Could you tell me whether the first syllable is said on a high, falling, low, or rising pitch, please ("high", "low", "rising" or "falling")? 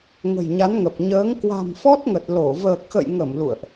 low